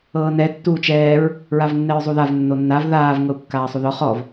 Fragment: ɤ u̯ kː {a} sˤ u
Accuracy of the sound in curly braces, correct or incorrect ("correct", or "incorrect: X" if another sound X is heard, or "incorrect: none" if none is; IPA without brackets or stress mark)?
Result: incorrect: aː